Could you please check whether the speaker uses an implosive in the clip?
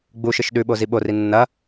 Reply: yes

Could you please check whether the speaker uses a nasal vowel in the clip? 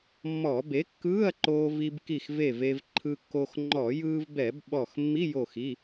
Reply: no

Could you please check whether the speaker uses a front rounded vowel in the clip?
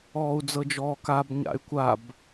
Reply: yes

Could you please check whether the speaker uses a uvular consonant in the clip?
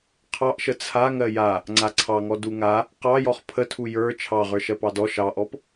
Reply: yes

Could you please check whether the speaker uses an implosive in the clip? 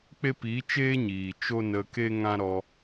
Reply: no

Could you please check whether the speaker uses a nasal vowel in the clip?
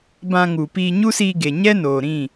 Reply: yes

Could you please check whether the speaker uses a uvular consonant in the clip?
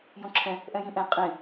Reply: yes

